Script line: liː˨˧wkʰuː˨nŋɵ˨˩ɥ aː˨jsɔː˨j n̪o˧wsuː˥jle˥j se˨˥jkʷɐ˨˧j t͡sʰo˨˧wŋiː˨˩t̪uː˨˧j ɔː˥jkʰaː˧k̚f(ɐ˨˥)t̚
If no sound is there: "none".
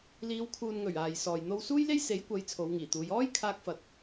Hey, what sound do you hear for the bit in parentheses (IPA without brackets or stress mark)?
ɐ˨